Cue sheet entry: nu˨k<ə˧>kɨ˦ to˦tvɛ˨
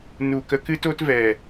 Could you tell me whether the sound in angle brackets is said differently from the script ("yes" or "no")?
no